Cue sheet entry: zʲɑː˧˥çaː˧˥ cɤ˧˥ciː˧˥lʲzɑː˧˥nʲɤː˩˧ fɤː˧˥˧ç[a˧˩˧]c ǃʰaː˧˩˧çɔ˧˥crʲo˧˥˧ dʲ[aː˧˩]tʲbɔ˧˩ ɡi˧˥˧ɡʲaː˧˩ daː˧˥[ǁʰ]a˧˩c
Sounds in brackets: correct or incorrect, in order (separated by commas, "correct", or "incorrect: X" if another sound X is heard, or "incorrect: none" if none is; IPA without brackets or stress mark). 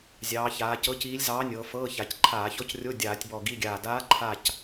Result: incorrect: a˩˧, incorrect: aː˧˩˧, incorrect: ǃʰ